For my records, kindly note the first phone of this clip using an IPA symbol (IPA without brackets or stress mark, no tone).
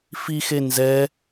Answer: f